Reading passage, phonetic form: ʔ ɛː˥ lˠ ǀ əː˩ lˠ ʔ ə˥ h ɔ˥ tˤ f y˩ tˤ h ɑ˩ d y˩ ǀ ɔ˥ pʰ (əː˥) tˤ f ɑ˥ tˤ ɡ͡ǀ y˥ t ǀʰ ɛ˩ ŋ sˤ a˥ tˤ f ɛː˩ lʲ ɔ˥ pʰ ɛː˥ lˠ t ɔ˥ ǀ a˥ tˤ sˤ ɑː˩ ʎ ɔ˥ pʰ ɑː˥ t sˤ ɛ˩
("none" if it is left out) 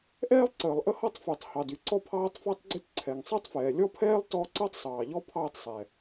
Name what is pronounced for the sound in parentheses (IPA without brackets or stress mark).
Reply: ɑː˥